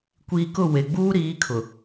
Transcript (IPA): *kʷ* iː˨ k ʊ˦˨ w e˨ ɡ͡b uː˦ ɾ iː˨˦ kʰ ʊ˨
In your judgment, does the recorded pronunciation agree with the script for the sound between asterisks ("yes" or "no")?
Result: yes